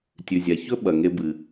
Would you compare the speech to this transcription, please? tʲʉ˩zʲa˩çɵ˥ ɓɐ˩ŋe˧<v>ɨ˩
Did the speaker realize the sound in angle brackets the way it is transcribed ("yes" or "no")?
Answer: no